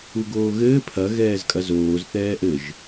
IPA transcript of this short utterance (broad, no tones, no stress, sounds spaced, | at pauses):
u ɡ oː ɣ ɘː pʰ ɐ ɣ ɛː z kʼ ɐ z oː z θ ɛː ʔ ɘ ʒ